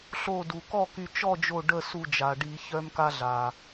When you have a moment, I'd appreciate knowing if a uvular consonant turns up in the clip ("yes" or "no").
no